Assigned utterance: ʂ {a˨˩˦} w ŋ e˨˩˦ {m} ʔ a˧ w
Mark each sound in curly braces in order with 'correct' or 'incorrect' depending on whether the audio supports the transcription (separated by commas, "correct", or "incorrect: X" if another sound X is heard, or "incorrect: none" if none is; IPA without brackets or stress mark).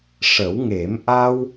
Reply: incorrect: ə˨˩˦, correct